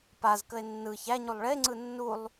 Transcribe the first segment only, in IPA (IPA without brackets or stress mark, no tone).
p